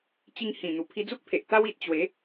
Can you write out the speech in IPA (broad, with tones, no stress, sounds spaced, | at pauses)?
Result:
t͡ɕ i˧ ŋ h ĩ˨˩ n̪ u˨˩ pʰ i˧ d͡z u˦ k̚ pʰ e˨ ʔ t̪ a˦ w i˨ t̚ t͡ɕ w e˨˦